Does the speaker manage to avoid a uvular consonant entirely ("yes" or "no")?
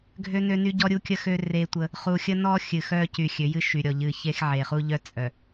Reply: no